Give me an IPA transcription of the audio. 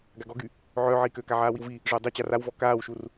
ɡ a ɡ ɔ ɡ y | ʕ œː ʕ iː k øː k a ʕ aː w i w v i | ʐ œ dˤ i t͡ɕ a r a w v ɔ k aː w ʃ u r

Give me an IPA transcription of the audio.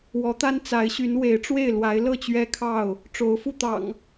w ɔ˨˦ t̪ a˦ n t͡s a˨˦ ɪ̯ ɕ y˨˦ n w e˨˦ ɪ̯ ʈ͡ʂ w e˥˨ ɪ̯ l w a˨˦ ɪ̯ l ɤ˥˨ t͡ɕ ɥ ɛ˦ kʰ ɑ˥˨ ʊ̯ | ʈ͡ʂ o˨˦ ʊ̯ f u˥˨ t̪ ɑ̰˨˩ ŋ

